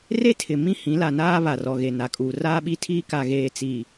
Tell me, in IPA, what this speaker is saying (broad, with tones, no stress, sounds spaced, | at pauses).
r e˦ tʰ ɪ˨ m ĩ˦ h ĩ˨˦ l a˨ n aː˦ β a˨ r ɔ˨ ɣ e˨ n a˨ kʼ uː˨ r aː˦ ɓ i˦ tʰ iː˦ k a˨ ɣ eː˨ t͡s iː˨